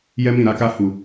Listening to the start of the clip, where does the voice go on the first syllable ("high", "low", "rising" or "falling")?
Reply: high